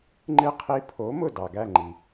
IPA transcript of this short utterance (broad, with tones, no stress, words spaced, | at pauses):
ŋ͡ǃɨ˥˩qʰi˦˥ pʰo˨˥ mʊ˥˩ dɑ˩ɡæ˥˩ŋ͡ǃi˩